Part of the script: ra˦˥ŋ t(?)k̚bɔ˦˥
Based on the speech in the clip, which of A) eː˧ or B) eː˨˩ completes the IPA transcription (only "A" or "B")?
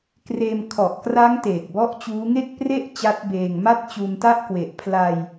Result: B